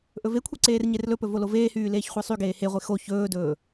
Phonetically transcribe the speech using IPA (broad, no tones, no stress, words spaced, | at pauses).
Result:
ʔɵvekʷʰi ǀeːrɲerlɵpɵ voloveːhyː leːçχʷɛsˤyɡeː heʁʷe xo çɵːdɵː